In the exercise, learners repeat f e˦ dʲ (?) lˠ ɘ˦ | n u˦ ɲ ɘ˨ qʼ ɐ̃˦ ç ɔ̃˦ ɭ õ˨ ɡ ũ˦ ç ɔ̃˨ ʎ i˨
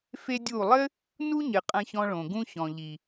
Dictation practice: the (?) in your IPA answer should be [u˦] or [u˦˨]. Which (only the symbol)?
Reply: u˦˨